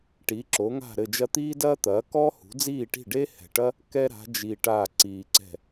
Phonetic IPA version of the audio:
ʈ iː˩˥ ǁ o˩˥ ŋ a̤˥˩ ɾ ɘ˥˩ d͡ʒ ɐ˥ t̪ iː˥ d ɐː˥ t̪ ɐː˩˥ k ɔː˥ h ṳ˩˥ d͡z iː˥˩ ʈ i̤˥˩ ɖ eː˥ h ɛ̤˨˩ ʈ ɐ˥ | k ɛ˥ ɾ a̤˩˥ d͡ʒ i˨˩ ʈ aː˥˩ ǀ iː˨˩ ǀ ɛ̤˥˩

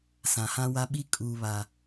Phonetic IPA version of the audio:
s ã˨ h ã˦ w a˦ ɓ i˦ kʼ uː˨ β a˨

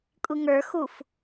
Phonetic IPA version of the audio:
kʷʼ i ŋ ə˞ x u f

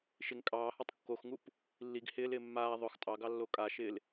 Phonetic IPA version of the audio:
ʃ ɪ ŋ kʼ ɑː h ɔ tˤ kː o x ŋ u p | lː i ɡ h ɪː l ɪː mː aː ðˤ ʊ x tʼ ɑ ɡ ɑ lː o kʼ a ʃ ɪː l

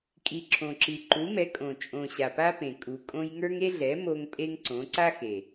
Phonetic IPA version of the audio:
kʼ i˨˩ ǁʰ õ˨˩ ǁ i˨˩ ǃ u˩˥ m ɛ˩˥ kʼ õ˨˩ t͡ʃʼ õ˨˩ ɕ a˨˩ p a˦ p ẽ˨˩ kʼ u˨˩ kʼ õ˦ j ŋ ə˞˦ ŋ e˦ ɮ ɛ˩˥ m o˦ ŋ pʼ e˦ ŋ ǀ õ˩˥ ǀ a˦ x e˨˩

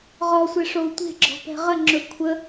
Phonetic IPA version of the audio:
ʁ ɔ sʷ ɛ ʂ o u̯ tʷ e̤ ɡ͡ǁ ɔ̤ p ɛ̤ ʁ ə ŋ͡ǁ ɵ kʷʰ ə

